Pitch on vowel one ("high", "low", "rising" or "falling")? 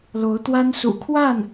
rising